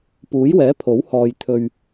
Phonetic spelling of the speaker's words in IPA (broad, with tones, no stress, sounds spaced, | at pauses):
p uː˨˥ j w ɛː˨˥ pʰ o˨˥ w h ɔː˨ j t̪ʰ ɵ˨ ɥ